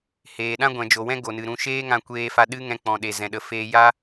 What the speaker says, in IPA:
h eː˨ ɗ ã˦ ɡʷ ɛ̃˨ d͡ʒ o˨ w ɛ̃˦ ɡ o˨ n ɨ˨ ɾ ũ˧ ʃ eː˦ ŋ ã˧ kʷ eː˧ f a˧ ɗ ɨ˦ ŋ ɛ̃˧ k͡p ɔ̃˨ ɗ e˨ z ɛ̃˨ ɗ ə˨ f eː˧ j a˦

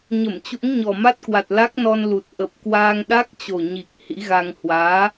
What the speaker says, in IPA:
ɲ ə˧˩ m t͡ɕ ṵ˧˥ ŋ ɲ ɔ˨˩ m a˦˥ t̚ k w a˨˩ t̚ l a˦˥ k̚ n ɔ˧ n l u˨˩ t̚ ʔ ə˨˩ p̚ k w aː˧ ŋ ɗ a˦˥ k̚ t͡ɕ o˨˩ ɲ i˨˩ k̚ h ḭ˧˥ ɣ a˧ ŋ h w aː˨˦

